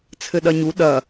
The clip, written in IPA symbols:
t͡sʰ ɘ ɗ ɐ ɲ u ɗ ɐ

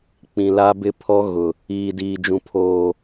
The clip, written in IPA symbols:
k͡p ĩ˨ l a˦ b ɪ˦ pʰ ɔ˦ ɣ ʊ˨ | iː˨ d iː˨ d͡ʒ ũ˨ pʰ oː˨

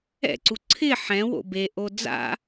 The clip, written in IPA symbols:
ɛ̰ ǀ u ǀʰ ɪ ħ ɛ̃ w o̰ b e ʔ o d͡z a̰

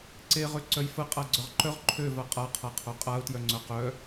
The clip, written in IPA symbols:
ǀ e ʁ ø ǀ œ j f ə qʼ a ɡ͡ǀ œ ʁ ǃ œ ʁ ǃʰ ø v a qʼ a qʰ a qʰ o qʼ a ʊ̯ t j œ ŋ͡ǀ œ q œ

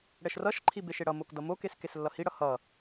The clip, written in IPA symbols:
ɽ ɛ ʃ r ʌ ʃ ǃʰ i b e ʃ e ɽ ʌ m o k d ʌ m o k e s k e s lː ʌ h i ɽ ʌ h ʌ

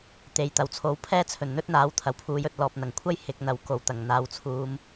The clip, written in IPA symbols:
t̪ e˨˧ j t̪ ɐ˨ w t͡sʰ o˨˥ w pʰ ɛː˥ t͡sʰ ɵ˨˩ n n̪ ɵ˥ t̚ n̪ aː˨˥ w t̪ʰ ɐ˨˩ w pʰ uː˨˥ j ɵ˧ t̚ l ɔː˨ p̚ n̪ ɐ˨˩ ŋ kʷʰ ɐ˥ j h ɪ˨˥ k̚ n̪ ɐ˨˧ w k o˨˩ w t̪ ɐ˨˩ ŋ n̪ aː˨ w t͡sʰ uː˨˧ m

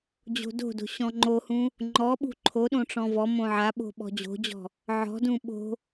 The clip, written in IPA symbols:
d͡ʑ o̤ d o̤ d o̤ ɕ ɔ̃ ŋ͡ǃ o h ũ | ŋ͡ǃ ɔ ɓ ṳ ǃʰ o ɗ õ ʈ͡ʂ ɔ̃ v ɔ m õ ʕ a ɓ o̤ ɓ ɔ̤ d͡ʑ o̤ d͡ʑ ɔ̤ | ʕ ɔ̤ d ũ ɓ o̤

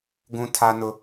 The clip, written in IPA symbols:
ɡ ũ˦ tʰ a˦ n ʊ˦

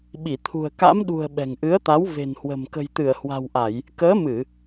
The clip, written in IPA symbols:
ɓ i˧˩ t̪ʰ ṳ˨˩ ə̯ k a̰˧˥ m ɗ ṳ˨˩ ə̯ ɓ ɛ̤˨˩ ŋ ʔ ɨ˨˦ ə̯ t̪ a˨˦ w v e̤˨˩ n h w ə̤˨˩ m k ə̤˨˩ j t̪ ɨ˧˩ ə̯ h w a̤˨˩ w ʔ a˧˩˨ j | k əː˨˦ m ɨ˧˩˨

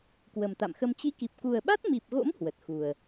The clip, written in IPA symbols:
k w ə˨˩ m t̪ a̰˧˨ m x ə˧ m t͡ɕ i˨˦ k i˨˩ p̚ k u˨˩ ə̯ ɓ a˦˥ t̚ m i˨˩ p̚ ɣ o̰˧˥ m h w ə˨˩ t̚ x u˨˩ ə̯

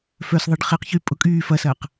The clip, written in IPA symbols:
f œ s ðˤ e ɖ χ e q ç y pʼ ʊ kʼ yː f ɐ s ɐː q

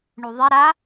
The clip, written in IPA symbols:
ɳ u ðˤ e ɾ a

